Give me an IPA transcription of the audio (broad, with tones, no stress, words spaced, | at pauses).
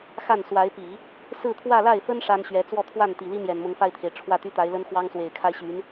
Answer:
xa˥˩nswa˧˥ɪ̯pi˨˩˦ | sɹ̩˥˧t̪ʰwä˥˧la˥˩ɪ̯fə˥n ʂa˥nɕɥɛ˧˥ t͡swɔ˥˧t̪ʰwa˥˩nt̪i˨˩li˥ n̪jɛ˨˩nmʊ˧˥ŋfa˥˩ɪ̯t̪ʰe˩ɪ̯ ʈ͡ʂʰwä˥˩t̪y˥t̪a˧˥ɪ̯lə˥n xwɑ˥ŋswe˨˩ɪ̯kʰa˥ɪ̯ ɕy˧˥n